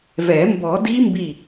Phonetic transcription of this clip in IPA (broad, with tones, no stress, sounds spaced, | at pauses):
v ɛ˨˩˦ m b ɔ˨˩˦ d i˦˥ m b i˧˩